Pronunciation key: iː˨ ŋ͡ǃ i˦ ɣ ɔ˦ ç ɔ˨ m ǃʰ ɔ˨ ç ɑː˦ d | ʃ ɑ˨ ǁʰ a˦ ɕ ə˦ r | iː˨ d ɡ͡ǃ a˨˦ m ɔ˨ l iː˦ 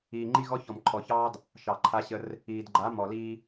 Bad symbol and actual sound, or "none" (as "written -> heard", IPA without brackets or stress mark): ǁʰ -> ǃʰ